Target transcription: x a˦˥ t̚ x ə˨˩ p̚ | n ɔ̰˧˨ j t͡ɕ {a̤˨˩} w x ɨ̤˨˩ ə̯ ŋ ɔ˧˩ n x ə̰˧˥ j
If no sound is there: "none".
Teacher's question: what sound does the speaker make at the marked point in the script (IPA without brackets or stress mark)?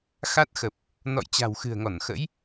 a̤˨˩